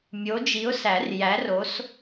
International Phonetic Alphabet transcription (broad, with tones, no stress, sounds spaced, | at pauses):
mʲ o˨˦ d͡ʒ i˨˦ ʊ̯ s æ˨˩˦ r j æ˨˦ r o˨˦ s